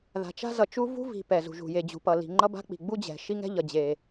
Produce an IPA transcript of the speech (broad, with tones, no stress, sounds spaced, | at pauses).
ð a̤˩ t͡ʃ a̤˥ z ʌ˩ t͡ʃ u˥ v ṳ˥ v i̤˩ p ɛ˩ z ṳ˩ ʒ ṳ˩ j e˩ d͡ʑ ṳ˩ p ʌ˩ l i̤˩ ŋ͡ǃ ʌ˥ b a̤˥ k͡p i̤˩ ɡ͡b u˥ d͡ʑ ɛ̤˩ ʃ i˥ ŋ ɛ̤˥ ʎ ʌ˩ d͡ʑ e˩